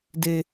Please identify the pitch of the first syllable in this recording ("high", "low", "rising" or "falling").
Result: low